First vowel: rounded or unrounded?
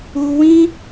rounded